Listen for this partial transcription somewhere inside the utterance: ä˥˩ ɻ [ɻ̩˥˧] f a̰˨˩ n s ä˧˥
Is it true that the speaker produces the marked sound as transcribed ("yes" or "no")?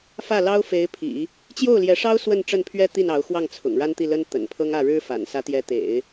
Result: no